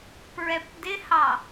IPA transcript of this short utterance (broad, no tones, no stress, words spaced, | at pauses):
pɹɛpdɪhɑ